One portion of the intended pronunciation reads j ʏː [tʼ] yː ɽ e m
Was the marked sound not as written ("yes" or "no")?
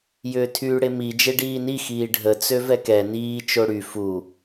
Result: yes